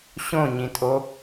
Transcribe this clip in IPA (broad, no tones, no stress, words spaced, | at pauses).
ɕõɲĩtʼo